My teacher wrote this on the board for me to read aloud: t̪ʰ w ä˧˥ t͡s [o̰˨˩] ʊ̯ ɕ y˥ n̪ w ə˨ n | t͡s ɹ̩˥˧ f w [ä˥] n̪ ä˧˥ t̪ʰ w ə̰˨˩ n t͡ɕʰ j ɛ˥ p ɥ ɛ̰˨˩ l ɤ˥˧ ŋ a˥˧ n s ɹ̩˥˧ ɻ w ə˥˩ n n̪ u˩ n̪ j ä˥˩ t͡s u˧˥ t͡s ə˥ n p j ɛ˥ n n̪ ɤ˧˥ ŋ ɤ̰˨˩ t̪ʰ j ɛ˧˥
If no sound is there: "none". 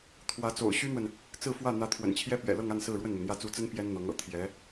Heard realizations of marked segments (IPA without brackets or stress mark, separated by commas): o̰˨˩, ä˥˩